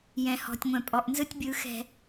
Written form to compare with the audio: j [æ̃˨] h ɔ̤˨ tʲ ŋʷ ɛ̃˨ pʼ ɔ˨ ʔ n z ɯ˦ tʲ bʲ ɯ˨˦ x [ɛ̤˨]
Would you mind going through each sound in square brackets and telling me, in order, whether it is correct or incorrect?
incorrect: ɛ̃˨, correct

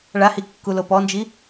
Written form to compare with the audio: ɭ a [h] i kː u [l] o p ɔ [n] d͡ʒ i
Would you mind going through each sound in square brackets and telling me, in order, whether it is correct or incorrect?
correct, correct, correct

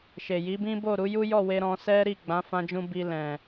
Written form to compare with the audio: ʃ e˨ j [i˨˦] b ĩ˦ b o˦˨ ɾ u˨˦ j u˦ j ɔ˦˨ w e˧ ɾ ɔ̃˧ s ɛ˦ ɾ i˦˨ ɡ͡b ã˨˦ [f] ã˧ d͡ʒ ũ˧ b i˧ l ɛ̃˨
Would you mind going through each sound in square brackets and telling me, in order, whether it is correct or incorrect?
correct, correct

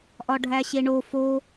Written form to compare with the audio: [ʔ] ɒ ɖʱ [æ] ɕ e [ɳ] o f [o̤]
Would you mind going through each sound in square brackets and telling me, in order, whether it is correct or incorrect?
correct, correct, correct, incorrect: o

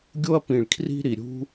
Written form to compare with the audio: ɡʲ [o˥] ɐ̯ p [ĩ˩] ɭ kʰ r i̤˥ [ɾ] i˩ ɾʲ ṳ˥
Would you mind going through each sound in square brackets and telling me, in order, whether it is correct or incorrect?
correct, correct, correct

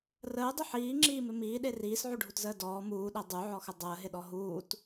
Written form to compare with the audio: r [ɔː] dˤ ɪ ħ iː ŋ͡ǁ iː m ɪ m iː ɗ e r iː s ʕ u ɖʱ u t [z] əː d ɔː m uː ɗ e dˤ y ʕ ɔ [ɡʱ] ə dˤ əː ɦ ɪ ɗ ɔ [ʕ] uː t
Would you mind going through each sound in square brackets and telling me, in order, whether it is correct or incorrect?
incorrect: əː, correct, incorrect: x, incorrect: ɦ

